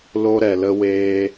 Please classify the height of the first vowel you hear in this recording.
mid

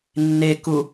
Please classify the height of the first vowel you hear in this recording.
mid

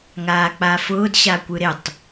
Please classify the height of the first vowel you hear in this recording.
low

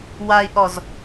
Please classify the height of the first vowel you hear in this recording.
low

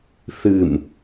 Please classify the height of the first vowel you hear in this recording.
high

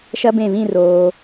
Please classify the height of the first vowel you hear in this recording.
low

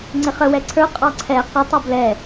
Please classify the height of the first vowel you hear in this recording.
high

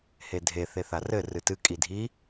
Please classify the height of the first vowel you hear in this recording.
mid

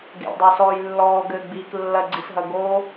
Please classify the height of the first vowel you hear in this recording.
mid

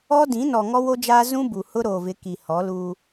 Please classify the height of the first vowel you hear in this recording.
mid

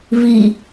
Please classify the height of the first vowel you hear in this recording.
high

